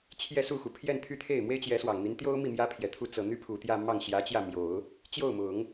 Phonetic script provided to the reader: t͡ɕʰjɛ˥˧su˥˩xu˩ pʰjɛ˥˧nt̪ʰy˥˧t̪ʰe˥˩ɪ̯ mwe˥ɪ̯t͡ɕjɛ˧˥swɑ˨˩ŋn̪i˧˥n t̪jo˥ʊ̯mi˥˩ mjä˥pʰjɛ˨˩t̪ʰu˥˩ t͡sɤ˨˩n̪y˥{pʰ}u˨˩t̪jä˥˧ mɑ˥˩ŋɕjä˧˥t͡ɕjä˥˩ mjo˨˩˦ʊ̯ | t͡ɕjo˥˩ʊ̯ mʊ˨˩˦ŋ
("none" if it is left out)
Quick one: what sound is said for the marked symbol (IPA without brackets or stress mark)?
pʰ